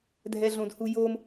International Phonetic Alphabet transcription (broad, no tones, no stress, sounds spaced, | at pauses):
dʱ ɛ ɮ õ d h u j o m